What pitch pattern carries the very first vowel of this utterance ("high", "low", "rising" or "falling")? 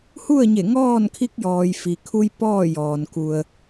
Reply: falling